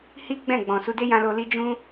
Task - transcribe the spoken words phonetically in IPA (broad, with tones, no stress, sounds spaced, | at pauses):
h i˦ ɡ͡b ɛ̃˦˨ ɡ͡b ɔ̃˨ s u˧ d e˦ j ã˧ l o˧ l i˦ d͡ʒ ũ˦